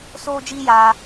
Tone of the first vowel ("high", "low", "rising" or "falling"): high